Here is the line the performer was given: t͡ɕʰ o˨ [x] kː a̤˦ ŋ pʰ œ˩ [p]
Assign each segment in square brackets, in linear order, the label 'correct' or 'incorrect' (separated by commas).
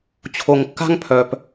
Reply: incorrect, correct